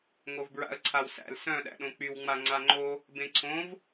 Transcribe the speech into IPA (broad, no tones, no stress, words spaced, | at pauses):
ŋovbɹa̰ə̯ǀʰawsæ̰l sœ̃ ɗæ̰ɗõk͡pyw ŋ͡maŋ͡ǀaŋ͡ǃo | bẽǀʰõv